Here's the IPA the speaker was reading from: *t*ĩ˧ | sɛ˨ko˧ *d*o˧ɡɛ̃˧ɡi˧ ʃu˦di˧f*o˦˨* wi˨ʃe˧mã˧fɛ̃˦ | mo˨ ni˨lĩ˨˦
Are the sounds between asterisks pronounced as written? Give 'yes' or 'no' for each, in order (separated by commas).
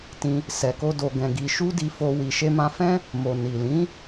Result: yes, yes, no